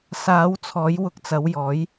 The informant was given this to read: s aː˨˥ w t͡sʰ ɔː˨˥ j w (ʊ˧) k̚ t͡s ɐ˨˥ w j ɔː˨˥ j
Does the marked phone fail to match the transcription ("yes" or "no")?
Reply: no